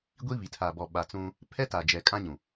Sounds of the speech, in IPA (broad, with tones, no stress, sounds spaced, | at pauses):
ɡʷ i˦ β i˨ tʰ aː˨ b ɔ˨ ɓ a˨ t͡s ũ˦ | pʰ ɛ˦ t a˨ d͡ʒ ɛ˨ kʼ ã˦ ɲ ũ˨